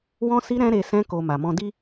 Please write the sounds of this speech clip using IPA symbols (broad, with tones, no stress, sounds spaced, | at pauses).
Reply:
w ɔ̃˧ s i˧ ɾ ɛ̃˦ ɾ e˧ s ɛ̃˧ k o˨ m a˨ m ɔ̃˧ d i˦